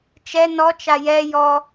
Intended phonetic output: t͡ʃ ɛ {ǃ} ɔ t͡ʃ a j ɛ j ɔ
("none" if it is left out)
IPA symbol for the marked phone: n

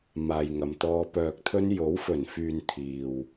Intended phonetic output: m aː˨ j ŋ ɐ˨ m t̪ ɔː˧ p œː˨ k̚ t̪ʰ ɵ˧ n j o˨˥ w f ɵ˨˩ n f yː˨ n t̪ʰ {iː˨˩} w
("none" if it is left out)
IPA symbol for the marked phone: iː˨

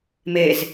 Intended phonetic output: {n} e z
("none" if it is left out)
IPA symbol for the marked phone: m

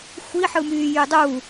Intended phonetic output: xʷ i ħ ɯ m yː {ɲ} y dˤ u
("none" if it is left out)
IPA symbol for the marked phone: j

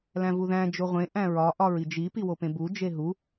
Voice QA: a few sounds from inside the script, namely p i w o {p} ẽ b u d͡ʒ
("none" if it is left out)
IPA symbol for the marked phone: p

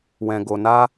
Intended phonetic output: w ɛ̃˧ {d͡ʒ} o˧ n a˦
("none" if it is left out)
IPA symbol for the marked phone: ɡ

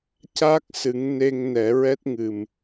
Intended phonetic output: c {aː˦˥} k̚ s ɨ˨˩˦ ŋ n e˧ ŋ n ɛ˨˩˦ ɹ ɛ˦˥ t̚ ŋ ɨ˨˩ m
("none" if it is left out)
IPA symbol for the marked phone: aː˦˥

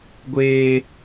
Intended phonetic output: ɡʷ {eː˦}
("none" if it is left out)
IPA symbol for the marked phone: eː˦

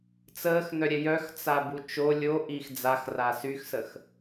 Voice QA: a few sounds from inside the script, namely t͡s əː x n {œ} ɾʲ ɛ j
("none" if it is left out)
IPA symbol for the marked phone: œ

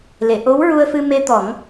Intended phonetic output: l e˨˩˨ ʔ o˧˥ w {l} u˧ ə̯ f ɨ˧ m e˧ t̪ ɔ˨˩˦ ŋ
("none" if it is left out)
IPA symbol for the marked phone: ɹ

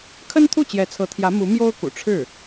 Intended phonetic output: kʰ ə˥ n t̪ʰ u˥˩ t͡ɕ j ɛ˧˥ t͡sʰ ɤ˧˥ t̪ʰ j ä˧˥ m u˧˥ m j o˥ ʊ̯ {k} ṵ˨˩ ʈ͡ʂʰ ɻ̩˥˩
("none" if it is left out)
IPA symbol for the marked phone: k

